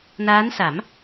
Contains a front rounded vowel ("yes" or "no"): no